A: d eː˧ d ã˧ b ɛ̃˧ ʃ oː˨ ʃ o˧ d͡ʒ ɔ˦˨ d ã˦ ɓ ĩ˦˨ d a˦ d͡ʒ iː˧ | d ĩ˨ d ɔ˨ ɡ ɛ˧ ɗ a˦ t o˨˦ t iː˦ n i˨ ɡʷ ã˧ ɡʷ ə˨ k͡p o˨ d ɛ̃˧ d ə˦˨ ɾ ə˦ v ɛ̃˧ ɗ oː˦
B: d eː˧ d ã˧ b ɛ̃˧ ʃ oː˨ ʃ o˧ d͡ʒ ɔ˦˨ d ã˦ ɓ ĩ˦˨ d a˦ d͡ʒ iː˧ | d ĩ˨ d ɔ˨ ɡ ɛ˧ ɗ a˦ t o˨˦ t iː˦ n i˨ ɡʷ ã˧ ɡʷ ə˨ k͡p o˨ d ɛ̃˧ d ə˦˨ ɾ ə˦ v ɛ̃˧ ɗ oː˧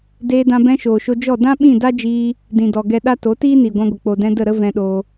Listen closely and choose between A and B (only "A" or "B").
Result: B